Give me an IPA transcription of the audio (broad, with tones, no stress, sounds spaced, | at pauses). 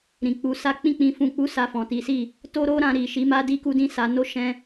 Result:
ɾ ĩ˨ k͡p u˨˦ s a˦ k͡p ĩ˧ k͡p ĩ˨ f ũ˨ k͡p u˨˦ s a˧ f ɔ̃˨ t i˨˦ s i˦˨ | t o˦ ɾ o˦ ɾ ã˧ ɾ i˨ ʃ i˨˦ m a˦ d i˧ k u˧ d ĩ˧ s a˨ n o˧ ʃ ɛ̃˦